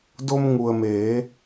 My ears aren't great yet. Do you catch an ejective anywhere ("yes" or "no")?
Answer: no